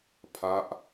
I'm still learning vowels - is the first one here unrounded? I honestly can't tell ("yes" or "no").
yes